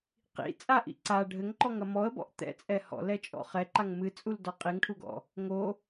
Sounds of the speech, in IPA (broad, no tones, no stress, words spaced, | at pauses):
qḭ t͡sʼaʔḭ ǀa ɖʱɘŋǃɔŋɐ mɔə̯bɔ̰ʔ t̪ɛ̰t͡sʼɛ hɔ̰lɛt͡ʃʼɔ̰ χɛǃaŋ mɨt͡sʼuldɔ qʼiŋʈʰuɡɔ̰ | ŋo